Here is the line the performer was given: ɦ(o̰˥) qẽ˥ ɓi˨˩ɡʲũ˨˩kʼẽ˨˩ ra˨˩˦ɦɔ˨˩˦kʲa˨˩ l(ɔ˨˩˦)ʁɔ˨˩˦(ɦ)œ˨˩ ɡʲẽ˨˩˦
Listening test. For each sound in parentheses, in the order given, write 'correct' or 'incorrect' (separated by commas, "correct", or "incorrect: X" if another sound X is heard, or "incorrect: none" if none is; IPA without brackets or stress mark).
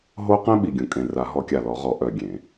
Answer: incorrect: o˥, correct, incorrect: ʔ